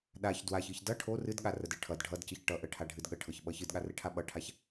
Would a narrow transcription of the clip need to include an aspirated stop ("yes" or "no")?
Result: yes